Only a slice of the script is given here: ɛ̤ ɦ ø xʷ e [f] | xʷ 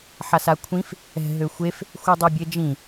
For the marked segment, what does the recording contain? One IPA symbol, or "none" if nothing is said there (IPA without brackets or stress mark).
f